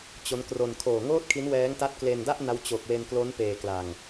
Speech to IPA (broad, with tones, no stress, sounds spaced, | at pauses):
t͡ɕ o˦˥ n k r o˧ n kʰ oː˨˩ ŋ oː˥˩ t̚ kʰ i˦˥ n w ɛː˦˥ ŋ t a˦˥ t̚ k l e˧ n d a˥˩ ʔ n a˦˥ w t͡ɕ o˨˩ k̚ w e˧ n k l o˦˥ n p eː˧ k l a˧ ŋ